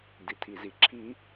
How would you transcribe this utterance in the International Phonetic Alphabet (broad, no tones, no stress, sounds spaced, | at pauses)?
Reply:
d i tʰ i z i ǁʰ i